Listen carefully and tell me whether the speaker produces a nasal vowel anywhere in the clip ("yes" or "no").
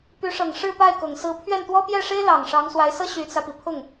no